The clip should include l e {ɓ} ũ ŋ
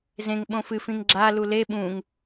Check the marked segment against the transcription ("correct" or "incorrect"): correct